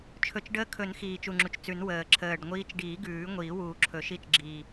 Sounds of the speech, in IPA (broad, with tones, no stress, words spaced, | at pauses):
t͡ʃʰɵ˨˩t͡ʃɖəː˧˥kʰɵ˨˩˦n xiː˨˩t͡ʃu˨˩ŋ͡ǁu˨˩t͡ʃt͡sʉ˨˩˦n wəː˨˩ ǁʰəː˨˩ɖŋʷiː˧˥t͡ʃ ɖiː˨˩˦ ɡʉː˨˩˦ŋʷiː˨˩˦ wuː˨˩ǁʰɵ˨˩˦ʃi˧˥t͡ʃ ɡ͡ǁiː˨˩